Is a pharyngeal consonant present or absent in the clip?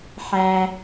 present